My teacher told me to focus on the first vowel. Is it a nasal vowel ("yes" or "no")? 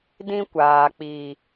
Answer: yes